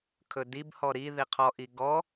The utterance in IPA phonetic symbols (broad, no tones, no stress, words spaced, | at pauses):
kʰɵdibhɔ ɾi ðiqʰɔʔi ɡɔ